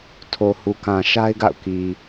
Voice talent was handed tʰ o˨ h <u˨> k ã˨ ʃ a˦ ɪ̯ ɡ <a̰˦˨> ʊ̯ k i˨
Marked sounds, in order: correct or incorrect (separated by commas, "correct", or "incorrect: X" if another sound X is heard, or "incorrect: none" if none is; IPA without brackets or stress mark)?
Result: correct, correct